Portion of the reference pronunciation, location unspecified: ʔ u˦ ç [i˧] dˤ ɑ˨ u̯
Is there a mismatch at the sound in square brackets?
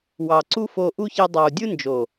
no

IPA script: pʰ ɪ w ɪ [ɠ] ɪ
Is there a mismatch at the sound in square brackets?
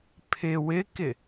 yes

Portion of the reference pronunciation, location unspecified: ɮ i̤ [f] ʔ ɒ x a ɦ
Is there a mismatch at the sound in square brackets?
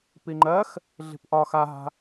yes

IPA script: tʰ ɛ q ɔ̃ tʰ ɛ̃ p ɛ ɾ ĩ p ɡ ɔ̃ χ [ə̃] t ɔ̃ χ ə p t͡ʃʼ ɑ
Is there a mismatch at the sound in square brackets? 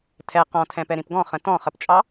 no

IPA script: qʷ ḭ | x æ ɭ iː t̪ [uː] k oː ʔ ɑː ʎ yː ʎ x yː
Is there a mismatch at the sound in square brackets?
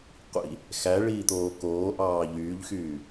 yes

